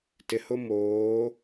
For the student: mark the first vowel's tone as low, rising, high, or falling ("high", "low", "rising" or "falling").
low